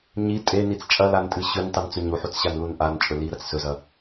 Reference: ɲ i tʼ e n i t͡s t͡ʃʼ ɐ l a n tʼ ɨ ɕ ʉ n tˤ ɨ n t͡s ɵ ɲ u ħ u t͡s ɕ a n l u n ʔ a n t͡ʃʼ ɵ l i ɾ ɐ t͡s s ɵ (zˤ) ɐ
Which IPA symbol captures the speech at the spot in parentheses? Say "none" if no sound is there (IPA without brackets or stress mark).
z